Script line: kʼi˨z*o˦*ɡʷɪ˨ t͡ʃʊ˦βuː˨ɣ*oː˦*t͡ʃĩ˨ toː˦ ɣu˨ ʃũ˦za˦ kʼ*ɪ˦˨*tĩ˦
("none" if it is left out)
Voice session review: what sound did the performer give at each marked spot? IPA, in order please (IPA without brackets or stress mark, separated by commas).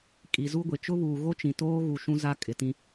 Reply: u˦, o˦, ɪ˨